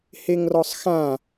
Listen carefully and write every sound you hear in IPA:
h e ŋ r ɔ sˤ x ã

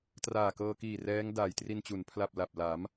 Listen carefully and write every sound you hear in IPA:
t r aː˨˩ k ɤː˧ k iː˨˩ r ɛː˦˥ ŋ d aː˨˩ j t r i˧ n t͡ɕ u˩˦ n pʰ l a˨˩ p̚ l a˨˩ p̚ l a˩˦ m

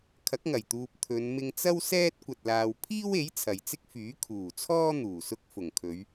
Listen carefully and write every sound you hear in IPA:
kʰ ɐ˨˥ k̚ ŋ ɐ˨˩ j t̪ uː˨ p̚ t̪ʰ ɵ˨˧ n m ɪ˧ ŋ t͡s ɐ˥ w s ɛː˥ t̚ kʷ ɐ˧ t̚ l aː˧ w pʰ iː˥ w e˨˥ j t͡sʰ ɐ˨ j t͡s ɪ˥ k̚ f yː˨˥ kʰ uː˨˩ t͡sʰ ɔː˥ n̪ uː˨˩ s ʊ˧ k̚ f ʊ˨˩ ŋ kʰ ɵ˨˧ ɥ

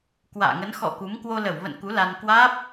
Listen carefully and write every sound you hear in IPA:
k w a̰ː˧˨ ŋ ə˨˦ n x ɔ̰˧˨ k u˨˦ m k w o˧ l ə˧˩ w v ə̰˧˨ n k u˨˦ l a˧ n k w aː˦˥ p̚

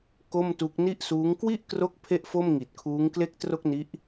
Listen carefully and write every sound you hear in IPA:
k o˥˩ m t u˦˥ k̚ n i˥˩ ʔ s uː˦˥ ŋ k w i˥˩ ʔ k r o˦˥ k̚ pʰ e˥˩ ʔ f o˥˩ m ŋ i˨˩ t̚ kʰ uː˦˥ ŋ k l e˥˩ k̚ t r o˥˩ k̚ n i˦˥ ʔ

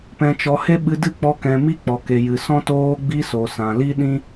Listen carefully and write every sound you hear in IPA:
p ɛ̃˨ t͡ʃ ɔ˨ h e˧ ɓ ɨ˧ d ɨ˦˨ k͡p ɔ˧ k ɛ̃˨ m i˧ k͡p ɔ˨ k e˨ j ɨ˨ s ɔ̃˧ t oː˧ ɡ͡b i˧ s o˨ s ã˨ l i˦ ɗ ĩ˦

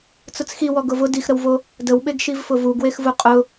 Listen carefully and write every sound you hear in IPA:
t͡s ʊ t͡s x i w ɔ ɡ ʊ v ʊ d i x ɾ ə w v o | d ə w ɓ e ɡ ʃ i v f ʊ v u ɡ w e x v u qʼ ʊ

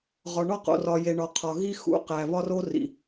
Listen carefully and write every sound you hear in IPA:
ʁ ɒ˨ ɳ ɒ˦˨ q o̰˨ r ɒ˨ j e˨ ɳ ɒ˨ qʰ ɒ˨ ɣ i˦ x ṵ˨ q æ˨ β ɒ˦ r o˦ r ḭ˨

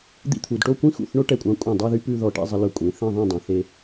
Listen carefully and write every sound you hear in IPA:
d̪ ḭ˥ t̪ʰ u˩˧ d ʈ o˥˧ kʷ ĩ˥ x ṵ˧˩ θ ɳ o˥ ʈ ɛ˧˩ kʷʼ ɑ̃˧ kʷʼ ɛ̃˧˩ dˤ u˥˧ ð y˥ p ʉ˧ ð ɔ˧˩ ʈ ḭ˥˧ zˤ i˧ l ɵ˧˩ kʷʼ ẽ˩˧ θ ɛ̃˥˧ ðˤ ĩ˥˧ dˤ ũ˩˧ θ e˥

